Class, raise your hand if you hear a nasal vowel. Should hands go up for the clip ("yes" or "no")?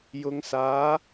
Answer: no